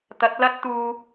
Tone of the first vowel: rising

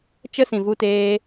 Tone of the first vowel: high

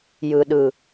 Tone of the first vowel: low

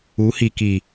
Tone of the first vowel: rising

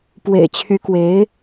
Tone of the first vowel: low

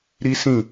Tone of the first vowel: high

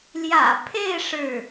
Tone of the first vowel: low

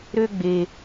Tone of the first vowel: high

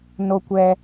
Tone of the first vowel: low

